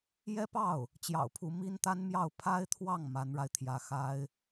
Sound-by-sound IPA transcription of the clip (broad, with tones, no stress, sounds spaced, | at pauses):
j ɛ˥ p ɑ˥˩ ʊ̯ | t͡ɕ j ɑ̰˨˩ ʊ̯ pʰ u˧˥ m i˥ n t̪ a˥ n m j ɑ˥˩ ʊ̯ pʰ a˥ ɪ̯ t̪ʰ w ɑ˥˩ ŋ m a˧˥ n ɻ a˧ ɪ̯ t̪ʰ j ä˧˥ x a˥ ɪ̯